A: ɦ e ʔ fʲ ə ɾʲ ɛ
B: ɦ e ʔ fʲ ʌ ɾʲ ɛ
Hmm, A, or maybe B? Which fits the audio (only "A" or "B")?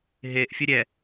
A